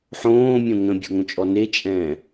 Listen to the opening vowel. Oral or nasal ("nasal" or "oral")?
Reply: nasal